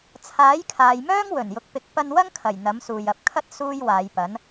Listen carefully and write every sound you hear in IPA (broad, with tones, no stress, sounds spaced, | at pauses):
t͡sʰ aː˨˥ j kʰ aː˨ j m œː˥ ŋ w ɵ˨˩ n j ʊ˨ k̚ p ɪ˨˥ k̚ p ɐ˧ n w ɐ˥ ŋ kʰ ɐ˨˩ j n̪ ɐ˨˥ m s uː˨ j ɐ˨ p̚ kʰ ɐ˥ t̚ s uː˥ j w aː˨˧ j p ɐ˨˥ n